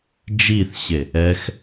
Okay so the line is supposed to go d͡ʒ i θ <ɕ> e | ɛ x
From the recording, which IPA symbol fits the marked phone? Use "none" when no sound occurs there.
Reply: ɕ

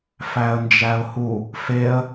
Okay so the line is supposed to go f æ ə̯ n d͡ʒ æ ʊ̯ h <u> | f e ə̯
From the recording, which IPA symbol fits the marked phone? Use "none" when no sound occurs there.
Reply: u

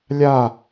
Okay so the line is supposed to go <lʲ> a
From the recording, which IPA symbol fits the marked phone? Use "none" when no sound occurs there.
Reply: lʲ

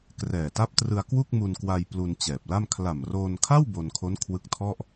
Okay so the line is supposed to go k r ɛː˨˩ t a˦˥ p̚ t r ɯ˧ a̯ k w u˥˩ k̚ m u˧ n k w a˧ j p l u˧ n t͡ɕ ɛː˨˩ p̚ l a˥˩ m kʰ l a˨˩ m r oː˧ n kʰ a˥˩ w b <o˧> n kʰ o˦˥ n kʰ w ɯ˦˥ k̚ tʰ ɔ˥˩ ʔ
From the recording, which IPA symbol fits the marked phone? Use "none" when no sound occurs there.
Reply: o˧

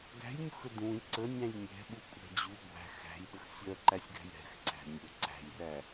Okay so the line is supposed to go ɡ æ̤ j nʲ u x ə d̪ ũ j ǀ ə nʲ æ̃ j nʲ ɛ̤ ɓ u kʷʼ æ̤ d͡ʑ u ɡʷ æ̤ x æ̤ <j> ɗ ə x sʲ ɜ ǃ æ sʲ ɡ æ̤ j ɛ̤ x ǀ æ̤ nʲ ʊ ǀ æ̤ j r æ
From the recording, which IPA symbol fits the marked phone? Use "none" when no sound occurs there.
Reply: j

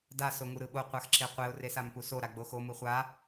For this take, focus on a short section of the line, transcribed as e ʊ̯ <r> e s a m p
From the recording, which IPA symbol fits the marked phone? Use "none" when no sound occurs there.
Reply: r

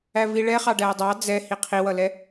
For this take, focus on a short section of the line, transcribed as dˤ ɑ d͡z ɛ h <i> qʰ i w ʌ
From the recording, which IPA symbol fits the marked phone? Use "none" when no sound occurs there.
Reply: i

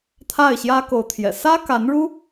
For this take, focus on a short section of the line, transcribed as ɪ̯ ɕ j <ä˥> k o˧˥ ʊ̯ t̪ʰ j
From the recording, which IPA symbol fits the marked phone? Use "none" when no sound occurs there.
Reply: ä˥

